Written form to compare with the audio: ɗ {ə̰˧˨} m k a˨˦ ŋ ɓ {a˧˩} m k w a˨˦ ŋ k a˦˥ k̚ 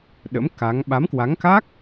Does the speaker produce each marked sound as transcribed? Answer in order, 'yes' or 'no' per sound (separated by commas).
no, no